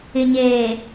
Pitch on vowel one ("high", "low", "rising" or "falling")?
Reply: low